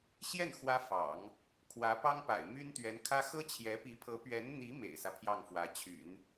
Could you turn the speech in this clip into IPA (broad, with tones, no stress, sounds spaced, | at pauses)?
ɕ j ɛ˥˩ n x w ä˥ f ɑ̰˨˩˦ ŋ | kʰ w ä˧˥ p ɑ˥ ŋ p a̰˨˩ ɪ̯ m y˥ n t̪ ɥ ɛ˧˥ n kʰ ä˥ x ɤ˥ t͡ɕʰ j ɛ˧˥ p i˧˥ pʰ ɤ˧˥ p ɥ ɛ˧˥ n n̪ i˧˥ m ḛ˨˩ ɪ̯ s ä˦ pʰ j ɑ˥˩ ŋ f w ä˧˥ t͡ɕʰ y̰˨˩˦ n